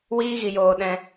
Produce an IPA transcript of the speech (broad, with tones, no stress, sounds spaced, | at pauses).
w iː˦ ɣ i˧ j oː˧ ɗ ɛ̃˧